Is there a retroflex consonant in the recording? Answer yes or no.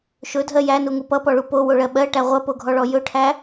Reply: yes